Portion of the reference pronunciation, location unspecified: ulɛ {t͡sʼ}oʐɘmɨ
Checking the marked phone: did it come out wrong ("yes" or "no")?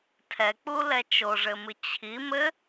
yes